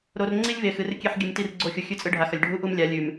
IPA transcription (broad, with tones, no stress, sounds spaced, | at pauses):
ɾ o˨ r ŋ͡ǀ i˦ lʲ v e˨ x ɨ˨˦ r kʲ e˦ ħ ɡʲ ɨ˨ m t i˦˨ r ɡ͡ǀ o˦˨ xʲ u˨ xʲ ʉ˦ t͡sʼ ɨ˦ ɖʱ a˨ x ɐ˨ lʲ ɖʱ u˦ ʔ u˦ m lʲ a˨˦ lʲ ʉ˨ m